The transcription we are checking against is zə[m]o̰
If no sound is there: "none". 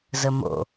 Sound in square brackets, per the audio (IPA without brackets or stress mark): m